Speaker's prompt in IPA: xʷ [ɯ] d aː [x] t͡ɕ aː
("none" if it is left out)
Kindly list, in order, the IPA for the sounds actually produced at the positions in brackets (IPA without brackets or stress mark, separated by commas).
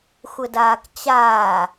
ə, k